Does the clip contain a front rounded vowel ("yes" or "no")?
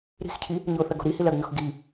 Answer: no